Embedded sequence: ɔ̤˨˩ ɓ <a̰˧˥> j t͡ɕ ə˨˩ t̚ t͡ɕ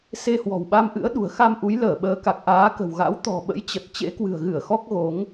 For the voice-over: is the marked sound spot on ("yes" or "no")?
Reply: no